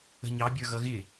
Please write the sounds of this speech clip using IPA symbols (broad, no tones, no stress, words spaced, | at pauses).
ə̤ɲɑbʲə˞ ɣʌɣɪ